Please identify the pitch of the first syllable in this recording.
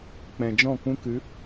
low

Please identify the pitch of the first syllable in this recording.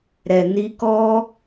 low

